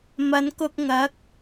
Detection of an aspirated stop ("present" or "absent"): absent